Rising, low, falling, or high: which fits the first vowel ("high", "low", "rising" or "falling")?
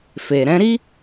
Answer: low